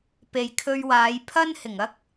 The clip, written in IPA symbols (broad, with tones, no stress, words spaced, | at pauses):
pe˨jkʰɵ˧ɥwaː˨˧j pʰɐ˥nhɪ˨˩ŋɐ˥k̚